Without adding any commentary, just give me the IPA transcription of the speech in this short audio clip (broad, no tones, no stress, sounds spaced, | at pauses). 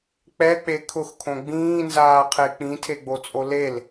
k͡p ɛ k͡p e kʰ ʊ x kʰ õ ɡ͡b ĩː n z aː qʰ e k͡p ĩ tʰ e ɡ͡b o t͡sʼ o l e l